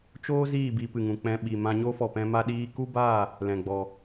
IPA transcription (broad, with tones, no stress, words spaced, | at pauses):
t͡ʃoː˦ ziː˦˨ bi˧pɨ˨ŋũ˨ k͡pɛ̃˧ɓi˨ mã˧ɲo˦fɔ˨pɛ̃˧ ma˧ ɗiː˦ ku˦ba˦˨ | lɛ̃˨ɡ͡bɔ˨